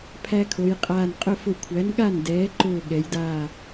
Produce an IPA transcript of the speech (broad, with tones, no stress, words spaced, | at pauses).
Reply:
pʰæ˦kʰo˩˧jqʼaː˧˩n qʼʊ˥˩ fʊ˧˩kʷʰæ˩˥nɠa˥˩n dɛː˩˥ǃʊː˧˩ ɠɛ˩˧jdaː˧˩